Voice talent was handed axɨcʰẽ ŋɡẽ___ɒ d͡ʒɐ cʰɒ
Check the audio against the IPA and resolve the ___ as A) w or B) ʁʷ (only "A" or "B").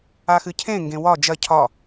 A